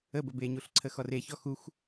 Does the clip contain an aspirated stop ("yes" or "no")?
yes